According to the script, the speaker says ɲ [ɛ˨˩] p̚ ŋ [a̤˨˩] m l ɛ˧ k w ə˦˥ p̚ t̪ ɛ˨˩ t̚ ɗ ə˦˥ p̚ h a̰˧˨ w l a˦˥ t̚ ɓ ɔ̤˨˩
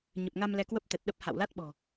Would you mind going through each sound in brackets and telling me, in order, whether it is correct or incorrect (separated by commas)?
incorrect, incorrect